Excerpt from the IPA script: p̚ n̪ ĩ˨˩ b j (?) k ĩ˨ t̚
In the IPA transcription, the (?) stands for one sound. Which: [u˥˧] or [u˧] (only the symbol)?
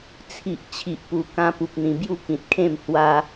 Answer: u˥˧